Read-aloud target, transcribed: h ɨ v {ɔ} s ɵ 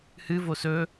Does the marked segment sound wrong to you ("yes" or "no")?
yes